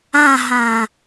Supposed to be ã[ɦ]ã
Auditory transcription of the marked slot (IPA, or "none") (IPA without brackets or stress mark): ɦ